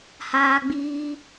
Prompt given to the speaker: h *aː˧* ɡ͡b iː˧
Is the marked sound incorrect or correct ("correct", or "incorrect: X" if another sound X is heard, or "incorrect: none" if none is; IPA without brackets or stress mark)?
correct